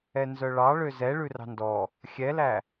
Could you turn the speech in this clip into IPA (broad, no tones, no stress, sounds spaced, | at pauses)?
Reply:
ɛ n z œ ɭ ɑ ɭ ø z ɛ ɭ ʉ r ɑ̤ n d ɔ | xʲ ɛ l æ